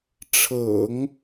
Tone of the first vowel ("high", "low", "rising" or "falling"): low